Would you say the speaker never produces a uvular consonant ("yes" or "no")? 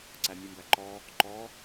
yes